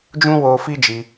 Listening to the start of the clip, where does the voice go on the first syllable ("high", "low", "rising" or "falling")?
high